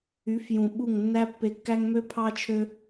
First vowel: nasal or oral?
oral